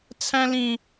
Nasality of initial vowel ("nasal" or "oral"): nasal